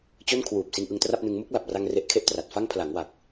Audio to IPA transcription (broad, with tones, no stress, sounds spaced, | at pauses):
t͡ɕ o˥˩ n kʰ w uː˨˩ p̚ s i˧ n ʔ ɯ˧ ŋ t r a˥˩ p̚ n ɯ˧ ŋ m u˥˩ k̚ l a˨˩ p̚ r a˧ ŋ r e˦˥ ʔ kʰ e˥˩ ʔ t r a˨˩ t̚ f a˥˩ ŋ pʰ l a˩˦ ŋ w a˨˩ k̚